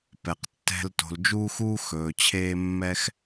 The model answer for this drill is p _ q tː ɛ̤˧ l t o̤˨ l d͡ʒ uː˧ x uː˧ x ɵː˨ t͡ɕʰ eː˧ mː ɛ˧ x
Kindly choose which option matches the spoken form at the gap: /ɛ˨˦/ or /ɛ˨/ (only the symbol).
ɛ˨